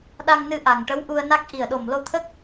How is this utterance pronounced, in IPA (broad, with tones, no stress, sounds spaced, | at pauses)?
ɗ a˧ ŋ n ɨ˧ ʔ a˨˩ ŋ ʈ ə˧˥ w ʔ u˧ ə̯ n a˦˥ k̚ ʔ i˨˩ ə̯ ɗ o˨˩ m l o˧ t̪ʰ ə˦˥ k̚